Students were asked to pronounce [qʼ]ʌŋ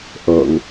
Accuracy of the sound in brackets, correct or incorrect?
incorrect